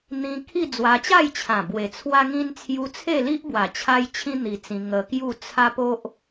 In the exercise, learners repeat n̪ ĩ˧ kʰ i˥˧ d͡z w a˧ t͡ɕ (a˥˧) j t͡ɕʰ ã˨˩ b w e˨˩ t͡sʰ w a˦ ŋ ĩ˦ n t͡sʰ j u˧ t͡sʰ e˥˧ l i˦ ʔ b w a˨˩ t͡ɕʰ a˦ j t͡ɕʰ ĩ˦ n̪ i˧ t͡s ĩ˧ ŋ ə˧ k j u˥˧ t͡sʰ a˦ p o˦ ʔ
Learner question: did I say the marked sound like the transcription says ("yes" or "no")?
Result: yes